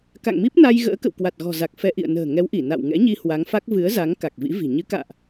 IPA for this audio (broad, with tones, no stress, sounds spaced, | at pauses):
k a̰˧˨ ŋ m i˦˥ p̚ n a˧ j ɣ ə̰ː˧˥ k ə̰˧˨ w k w a˨˩ t̚ ɣ ɔ̤˨˩ z a˨˩ k̚ f ɛ˧ ʔ ḭ˧˨ ə̯ n ə̤ː˨˩ ŋ ɛ˨˦ w ʔ i˧˩ n a̰˧˨ w ŋ ɛ̰˧˥ ɲ i˧ h w a˨˦ ŋ f a˦˥ k̚ v ɨ˨˦ ə̯ z a˨˦ ŋ k a˨˩ k̚ v ḭ˧˥ v i̤˨˩ ɲ ɨ˨˦ k a̰ː˧˨ ʔ